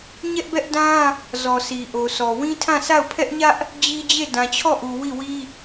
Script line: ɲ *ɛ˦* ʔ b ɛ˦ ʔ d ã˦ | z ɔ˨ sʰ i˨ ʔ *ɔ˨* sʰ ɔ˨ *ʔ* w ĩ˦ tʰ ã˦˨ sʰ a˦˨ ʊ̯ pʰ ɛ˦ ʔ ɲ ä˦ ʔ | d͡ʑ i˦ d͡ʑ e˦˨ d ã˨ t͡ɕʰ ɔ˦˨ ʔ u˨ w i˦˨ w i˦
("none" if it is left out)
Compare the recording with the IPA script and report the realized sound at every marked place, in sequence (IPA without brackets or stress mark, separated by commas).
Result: ɛ˦, o˨, none